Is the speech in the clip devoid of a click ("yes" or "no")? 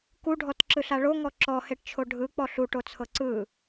no